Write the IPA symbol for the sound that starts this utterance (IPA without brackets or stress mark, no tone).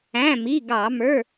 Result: æ̃